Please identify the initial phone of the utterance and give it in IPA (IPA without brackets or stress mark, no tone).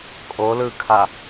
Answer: kʼ